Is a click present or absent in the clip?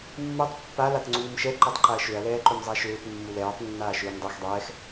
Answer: present